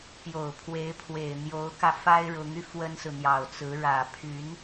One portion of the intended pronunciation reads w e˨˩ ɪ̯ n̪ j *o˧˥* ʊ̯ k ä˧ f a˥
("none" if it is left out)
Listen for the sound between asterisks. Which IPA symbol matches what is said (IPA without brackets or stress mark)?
o˧˥